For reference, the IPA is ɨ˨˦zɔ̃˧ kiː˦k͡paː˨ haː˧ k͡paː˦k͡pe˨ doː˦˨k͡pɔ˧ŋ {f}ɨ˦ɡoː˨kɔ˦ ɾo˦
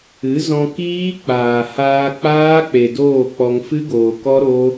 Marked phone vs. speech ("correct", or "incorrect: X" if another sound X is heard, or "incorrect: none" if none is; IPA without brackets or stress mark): correct